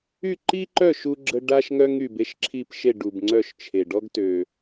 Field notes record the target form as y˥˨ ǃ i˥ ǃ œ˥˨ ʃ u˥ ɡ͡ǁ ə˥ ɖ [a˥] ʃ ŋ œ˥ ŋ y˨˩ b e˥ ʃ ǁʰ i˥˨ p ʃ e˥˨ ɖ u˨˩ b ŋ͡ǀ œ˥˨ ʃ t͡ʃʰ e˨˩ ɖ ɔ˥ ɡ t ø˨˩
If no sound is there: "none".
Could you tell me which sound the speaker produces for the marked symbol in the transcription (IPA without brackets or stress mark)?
a˥